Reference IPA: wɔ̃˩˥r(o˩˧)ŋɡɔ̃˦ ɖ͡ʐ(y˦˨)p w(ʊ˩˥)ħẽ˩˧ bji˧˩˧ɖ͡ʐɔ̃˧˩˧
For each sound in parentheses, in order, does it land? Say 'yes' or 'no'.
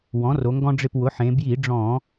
yes, no, yes

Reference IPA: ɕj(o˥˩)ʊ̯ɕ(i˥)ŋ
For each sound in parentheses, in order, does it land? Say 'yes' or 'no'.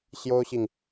no, no

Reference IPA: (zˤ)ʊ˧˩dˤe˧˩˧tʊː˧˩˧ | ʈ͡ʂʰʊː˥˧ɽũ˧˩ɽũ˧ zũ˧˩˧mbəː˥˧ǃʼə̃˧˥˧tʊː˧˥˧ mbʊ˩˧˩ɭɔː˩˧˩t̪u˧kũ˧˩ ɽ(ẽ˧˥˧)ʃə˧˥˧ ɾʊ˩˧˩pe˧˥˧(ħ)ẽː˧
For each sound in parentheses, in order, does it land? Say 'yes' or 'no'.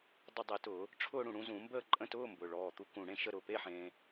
no, no, yes

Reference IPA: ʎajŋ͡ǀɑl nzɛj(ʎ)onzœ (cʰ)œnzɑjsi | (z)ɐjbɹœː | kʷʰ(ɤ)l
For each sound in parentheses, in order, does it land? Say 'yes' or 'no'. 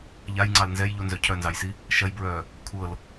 yes, yes, no, yes

